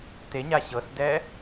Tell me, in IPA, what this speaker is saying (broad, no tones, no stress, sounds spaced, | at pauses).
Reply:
t e ɲ a ɕ ɤ s d ɛː